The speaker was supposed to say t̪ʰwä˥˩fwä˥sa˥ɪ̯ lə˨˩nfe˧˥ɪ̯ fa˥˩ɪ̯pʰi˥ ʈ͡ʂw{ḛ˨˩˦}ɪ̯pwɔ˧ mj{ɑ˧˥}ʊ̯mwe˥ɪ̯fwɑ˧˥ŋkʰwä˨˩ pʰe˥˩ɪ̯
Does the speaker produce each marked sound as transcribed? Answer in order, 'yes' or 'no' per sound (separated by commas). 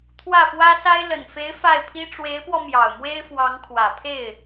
no, no